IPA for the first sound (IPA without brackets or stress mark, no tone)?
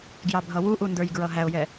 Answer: ɡ